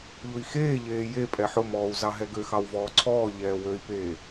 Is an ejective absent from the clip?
no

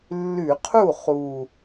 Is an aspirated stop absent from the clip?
no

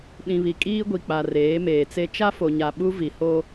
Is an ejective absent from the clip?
no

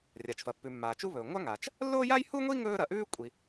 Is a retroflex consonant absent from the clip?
yes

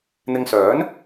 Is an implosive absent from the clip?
yes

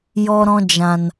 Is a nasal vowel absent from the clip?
no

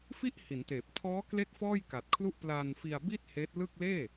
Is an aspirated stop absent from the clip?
no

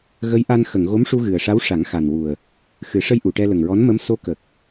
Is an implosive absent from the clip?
yes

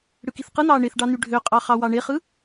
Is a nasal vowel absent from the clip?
yes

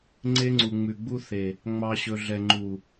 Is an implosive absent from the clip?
yes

